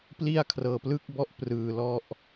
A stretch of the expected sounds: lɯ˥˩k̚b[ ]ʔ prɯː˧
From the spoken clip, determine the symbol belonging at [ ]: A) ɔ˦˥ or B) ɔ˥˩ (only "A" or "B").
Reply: B